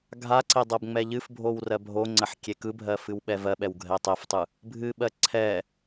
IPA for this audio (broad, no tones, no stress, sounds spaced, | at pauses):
ɡʱ a ǀ e dˤ ɜ b ŋ͡m ɛ ʎ ɨ f bʱ o w r ɜ bʱ o ŋ͡ǀ ɜ ħ kʲ e k ɯ bʱ ɜ f ɨ w ɓ ɛ v ɜ ɓ ɛ w ɡʱ ɛ tˤ ɛ f tˤ ɯ | bʱ ɨ ɓ ɜ ǀʰ ɛ